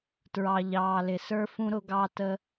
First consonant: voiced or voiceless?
voiceless